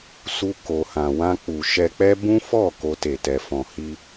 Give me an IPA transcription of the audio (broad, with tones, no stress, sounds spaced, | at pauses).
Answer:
s u˧ k o˨ h ã˨ w ã˧ k͡p u˨ ʃ ɛ˧ k͡p ɛ˦ b ũ˦ f ɔ˦˨ k o˧ t e˨ t ɛ˨ f ɔ̃˨ h i˧